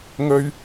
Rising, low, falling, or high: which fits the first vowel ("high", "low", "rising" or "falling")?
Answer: high